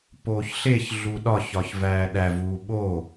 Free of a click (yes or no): yes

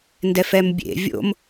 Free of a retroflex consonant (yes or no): yes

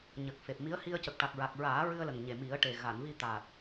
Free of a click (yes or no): yes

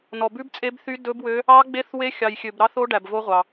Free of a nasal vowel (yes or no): yes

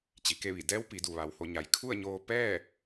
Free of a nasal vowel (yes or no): yes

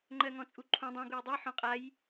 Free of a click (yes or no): no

